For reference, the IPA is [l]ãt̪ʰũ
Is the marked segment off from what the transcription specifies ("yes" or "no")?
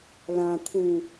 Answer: no